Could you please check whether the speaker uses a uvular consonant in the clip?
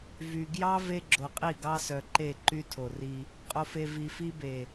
yes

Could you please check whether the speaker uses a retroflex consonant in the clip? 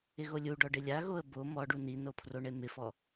yes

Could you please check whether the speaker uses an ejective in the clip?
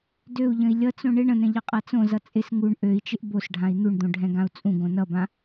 yes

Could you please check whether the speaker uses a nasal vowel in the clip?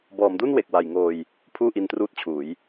no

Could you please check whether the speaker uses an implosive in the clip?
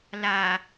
no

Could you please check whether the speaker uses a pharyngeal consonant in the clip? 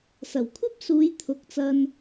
no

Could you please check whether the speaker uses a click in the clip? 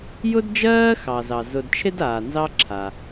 yes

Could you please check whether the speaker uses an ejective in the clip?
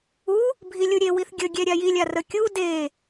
no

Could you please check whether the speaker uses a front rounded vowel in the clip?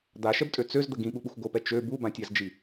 yes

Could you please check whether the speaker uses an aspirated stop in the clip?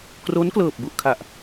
yes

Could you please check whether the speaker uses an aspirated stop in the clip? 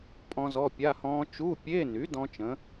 no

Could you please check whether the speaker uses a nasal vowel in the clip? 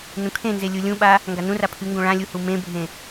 yes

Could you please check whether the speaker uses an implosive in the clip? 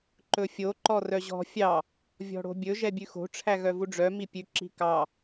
no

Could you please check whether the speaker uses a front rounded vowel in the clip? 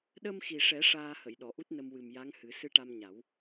no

